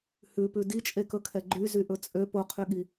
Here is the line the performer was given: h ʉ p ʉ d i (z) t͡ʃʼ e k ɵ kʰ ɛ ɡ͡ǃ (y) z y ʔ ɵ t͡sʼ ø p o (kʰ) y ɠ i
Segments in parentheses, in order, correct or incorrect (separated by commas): incorrect, correct, incorrect